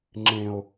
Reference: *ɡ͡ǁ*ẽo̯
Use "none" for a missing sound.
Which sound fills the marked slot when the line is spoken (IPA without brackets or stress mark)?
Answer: ŋ͡ǁ